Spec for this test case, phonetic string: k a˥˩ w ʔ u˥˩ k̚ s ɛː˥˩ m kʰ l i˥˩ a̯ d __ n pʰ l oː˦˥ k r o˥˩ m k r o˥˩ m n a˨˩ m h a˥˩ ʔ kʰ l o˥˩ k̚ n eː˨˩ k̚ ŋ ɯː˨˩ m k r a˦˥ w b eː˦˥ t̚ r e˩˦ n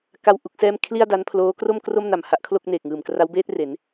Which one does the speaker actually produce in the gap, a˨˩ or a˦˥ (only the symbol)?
a˦˥